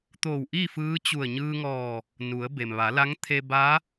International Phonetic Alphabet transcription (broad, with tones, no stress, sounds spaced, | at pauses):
t̪ oː˧˩ w ʔ i˥˨ f ɯː˧˥ t͡ɕ u˧˩ ə̯ ɲ ɯː˧ ŋ ɔː˧˩ | n u˩˧ ə̯ b e˩ m ʋ a˩˧ l a˧˥ ŋ t̪ʰ e˧ b a˧˥